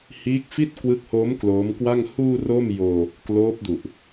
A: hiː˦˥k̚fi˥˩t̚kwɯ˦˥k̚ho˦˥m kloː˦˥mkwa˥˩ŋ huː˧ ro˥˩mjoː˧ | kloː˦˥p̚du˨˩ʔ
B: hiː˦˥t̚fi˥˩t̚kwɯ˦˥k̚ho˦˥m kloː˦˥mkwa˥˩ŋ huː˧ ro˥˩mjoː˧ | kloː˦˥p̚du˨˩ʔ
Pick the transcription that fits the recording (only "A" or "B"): A